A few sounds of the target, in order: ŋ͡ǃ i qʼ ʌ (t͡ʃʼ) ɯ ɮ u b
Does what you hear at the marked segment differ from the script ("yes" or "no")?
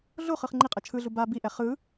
yes